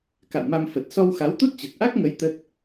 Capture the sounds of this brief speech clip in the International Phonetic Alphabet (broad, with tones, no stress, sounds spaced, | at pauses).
k a̰˧˨ w m a˧ m f ə˨˩ t̚ s ɔ˧ w x a˨˦ w t̪ u˦˥ t̚ t͡ɕ ə˨˩ t̚ ʔ a˦˥ k̚ ŋ ə˨˦ j t̪ ə˦˥ t̚